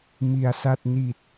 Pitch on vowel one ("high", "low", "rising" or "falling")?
low